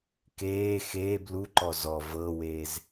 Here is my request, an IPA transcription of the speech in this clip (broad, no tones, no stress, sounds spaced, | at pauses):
k eː x eː b l u ǃ ɔ z ɔ v ɤ w e z